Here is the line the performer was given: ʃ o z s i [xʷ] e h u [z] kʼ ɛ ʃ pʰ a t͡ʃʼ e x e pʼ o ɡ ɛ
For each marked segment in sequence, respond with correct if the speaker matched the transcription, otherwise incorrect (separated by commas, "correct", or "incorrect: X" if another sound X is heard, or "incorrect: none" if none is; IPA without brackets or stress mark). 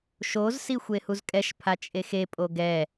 correct, correct